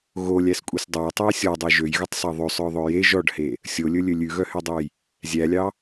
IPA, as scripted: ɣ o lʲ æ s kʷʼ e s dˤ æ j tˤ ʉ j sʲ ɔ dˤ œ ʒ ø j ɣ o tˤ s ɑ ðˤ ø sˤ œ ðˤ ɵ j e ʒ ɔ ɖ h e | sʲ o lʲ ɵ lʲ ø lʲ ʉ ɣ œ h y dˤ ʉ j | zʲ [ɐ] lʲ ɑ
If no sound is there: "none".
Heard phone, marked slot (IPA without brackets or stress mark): æ